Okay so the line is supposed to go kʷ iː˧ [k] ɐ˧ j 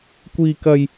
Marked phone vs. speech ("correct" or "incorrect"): correct